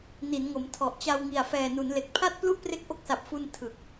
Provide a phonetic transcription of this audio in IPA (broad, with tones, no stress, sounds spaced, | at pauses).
n i˩˦ n ŋ o˩˦ m tʰ ɔ˨˩ ʔ t͡ɕ a˧ w ŋ i˨˩ a̯ f ɛː˨˩ n u˩˦ n l e˨˩ k̚ pʰ a˥˩ t̚ p l u˥˩ ʔ p r e˦˥ k̚ ʔ o˦˥ k̚ s a˨˩ p̚ f u˧ n tʰ ɯ˨˩ k̚